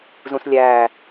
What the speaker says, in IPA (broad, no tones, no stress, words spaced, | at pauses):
zũslʲæː